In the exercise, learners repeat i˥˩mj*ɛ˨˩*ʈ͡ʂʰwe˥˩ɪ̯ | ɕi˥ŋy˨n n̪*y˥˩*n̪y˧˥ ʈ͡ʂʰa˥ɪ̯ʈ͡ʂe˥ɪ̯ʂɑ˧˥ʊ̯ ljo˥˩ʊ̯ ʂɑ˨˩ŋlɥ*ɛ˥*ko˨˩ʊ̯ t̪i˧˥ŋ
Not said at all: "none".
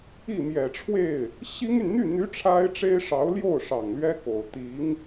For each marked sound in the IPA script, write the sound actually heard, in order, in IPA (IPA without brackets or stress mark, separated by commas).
ɛ˨˩, y˥˩, ɛ˥